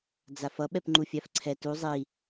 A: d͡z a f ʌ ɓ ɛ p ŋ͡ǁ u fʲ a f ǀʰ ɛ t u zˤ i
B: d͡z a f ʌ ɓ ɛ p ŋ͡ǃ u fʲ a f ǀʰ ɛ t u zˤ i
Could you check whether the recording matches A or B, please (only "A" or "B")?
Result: B